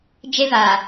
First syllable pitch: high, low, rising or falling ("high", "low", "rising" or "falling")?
high